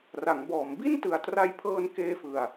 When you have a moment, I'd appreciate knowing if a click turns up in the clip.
no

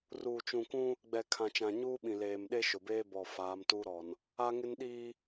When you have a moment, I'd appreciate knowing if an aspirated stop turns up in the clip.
yes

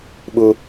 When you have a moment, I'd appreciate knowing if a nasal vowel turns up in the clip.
no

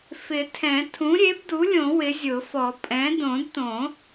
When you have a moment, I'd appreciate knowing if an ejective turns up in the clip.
yes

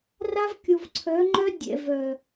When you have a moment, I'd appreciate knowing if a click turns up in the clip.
yes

